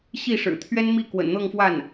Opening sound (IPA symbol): ɕ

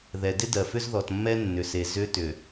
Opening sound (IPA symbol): ð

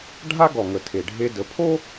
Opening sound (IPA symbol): ɖʱ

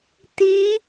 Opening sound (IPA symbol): t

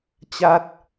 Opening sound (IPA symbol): t͡ɕ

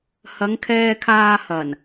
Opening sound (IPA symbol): h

